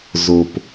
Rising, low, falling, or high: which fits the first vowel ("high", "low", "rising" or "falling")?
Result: low